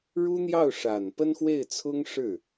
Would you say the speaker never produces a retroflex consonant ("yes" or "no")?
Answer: no